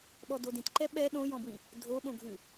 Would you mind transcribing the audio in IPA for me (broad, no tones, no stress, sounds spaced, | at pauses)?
ɓ ɔ d o d ĩ t ǃ ɛ ɓ ɛ ɗ õ j ɔ̃ b w ĩ | dʱ o ɓ õ ɡʱ ʉ